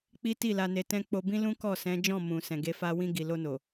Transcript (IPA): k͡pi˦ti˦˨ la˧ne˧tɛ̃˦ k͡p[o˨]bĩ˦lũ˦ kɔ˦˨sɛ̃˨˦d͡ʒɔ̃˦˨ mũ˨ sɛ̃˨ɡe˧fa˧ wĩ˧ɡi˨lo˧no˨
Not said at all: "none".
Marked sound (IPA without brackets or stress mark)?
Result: o˧